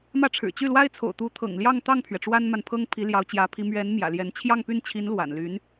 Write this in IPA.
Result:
m ä˥˩ ʈ͡ʂʰ ɻ̩˨˩ t͡ɕ y˥˩ l w a˥ ɪ̯ t͡sʰ o̰˨˩ ʊ̯ t̪ u˧˥ t̪ʰ ɤ̰˨˩ ŋ l j ɑ˥˧ ŋ t̪ ɑ˥˩ ŋ pʰ ɥ ɛ˩ ʈ͡ʂ w a˥ n m a˨ n pʰ ɤ˥ ŋ pʰ i˧˥ l j ɑ˧˥ ʊ̯ t͡ɕ j ä˧˥ pʰ i˧˥ m ɥ ɛ˧˥ n m j ä̰˨˩ l j ɛ˧˥ n t͡ɕʰ j ɑ˥˧ ŋ p y˥˩ n t͡ɕʰ i˧˥ n l w a̰˨˩ n l y˧˥ n

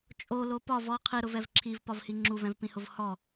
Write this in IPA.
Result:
t͡ʃʼ o l o p ɒ v ɔ qʰ i ɾ ʊ v ɛ v ǁʰ i v p ɒ v h i ŋ͡ǁ u v ɛ̃ v p ĩ h ʊ v h ɔ

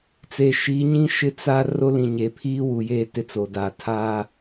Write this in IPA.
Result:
t͡s e˨ ʃ iː˨˦ ɲ ĩ˦ ʃ ɪ˦ t͡s a˦ r o˦ l ĩ˨ ɲ e˨ pʰ iː˦ w u˨ j e˦˨ t ɪ˦ t͡s o˨ d aː˨ tʰ aː˦

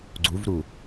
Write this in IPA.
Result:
ɡ͡ǀ u v ɾ u

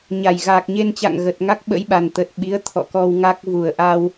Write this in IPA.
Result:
ɲ a˨˩ j ɣ aː˨˩ k̚ ɲ e˧ n t͡ɕ a̰˧˨ ŋ ɣ ə˨˩ t̚ ŋ a˦˥ k̚ ɓ ə̰˧˥ j ɓ a˨˩ n t̪ ə˨˩ t̚ ɓ i˨˦ ə̯ t̪ʰ ɔ̰˧˨ k ɔ˧ w ŋ a˦˥ k̚ v u˨˩ ə̯ ʔ a˧ w

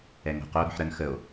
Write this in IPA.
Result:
ɛ ŋ o̤ q o ɾ ɔ̤ ħ ɾ ə n x ə o̯

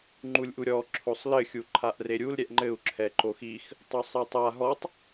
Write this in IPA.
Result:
ŋ͡ǃ u lʲ ʔ u ɾʲ ɔ ǁʰ o sˤ l ɘ xʲ u ǃʰ a ʔ r e ɾʲ u l ɾʲ ɛ ʔ ŋ͡ǃ ɘ u̯ ǁʰ ɛ ǃ o x i x | tˤ o sˤ e tˤ a ɦ ɔ tˤ

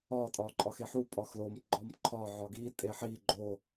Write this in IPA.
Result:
ɒ tʼ ɒ ǃʼ ɒ x e ħ u pʼ ɒ x l o m ɡ͡ǃ ɒ m ǃʰ ɒ ʕ ɒ ɡ i tʼ e ħ i ɡ͡ǃ o

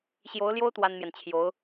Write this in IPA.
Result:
ɕ j o˧˥ ʊ̯ l j o˥ ʊ̯ t̪ w a˥ n m j ɛ˨ n t͡ɕʰ j o˧˥ ʊ̯

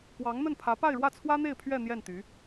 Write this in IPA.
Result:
k w ɑ˧˥ ŋ n̪ ə˥˩ n pʰ ä˧˥ p a˥˧ ɪ̯ ɻ w ä˥˩ t͡sʰ w ä˥ n̪ e˥˧ ɪ̯ pʰ ɥ ɛ˥˧ n̪ j ɛ˥˩ n t̪ y˧˥

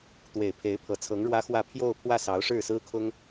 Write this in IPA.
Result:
t̪ w e˨˩ ɪ̯ pʰ e˧˥ ɪ̯ pʰ ɤ˨˩ t͡sʰ ɤ˧˥ ŋ ɻ w ä˥ x w ä˥˧ pʰ j o˥˧ ʊ̯ pʰ w ä˥˩ s ɑ˧˥ ʊ̯ ʂ ɻ̩˥˩ s ɹ̩˥ kʰ ʊ˥ ŋ

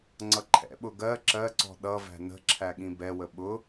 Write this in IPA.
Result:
ŋ͡ǀ ʌ ǃʰ ɛ̰ ɓ ʊ ɡ ɜ ǁ ɜ ǀ ɔ̤ ɗ ʌ v æ̤ n ə̤ ǁʰ æ ɠ ĩ b ɛ w ə ɓ ʊ

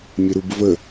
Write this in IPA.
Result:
mʲ ə ɾ u b v ə

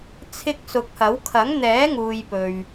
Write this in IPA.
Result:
t͡sʰ ɪ˧ k̚ s ʊ˨˥ k̚ h ɐ˨˥ w kʰ ɐ˨˥ ŋ n̪ ɛː˨˥ ŋ uː˨ j p ɵ˨ ɥ

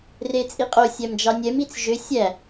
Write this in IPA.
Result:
r e t͡sʼ i qʼ o sʲ æ m d͡ʒ ɑ nʲ ɛ m i t͡s ʒ ø sʲ æ

